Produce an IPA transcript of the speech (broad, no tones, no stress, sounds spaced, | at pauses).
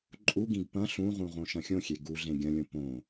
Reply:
ǃʼ u ɡ ĩ ɡ p ɐ̃ ɬ ũ ʁ ũ ʁ õ ʃ ɐ̃ xʲ õ xʲ e ɡ u ɮ ẽ ɡʲ ɐ̃ lʲ õ p õ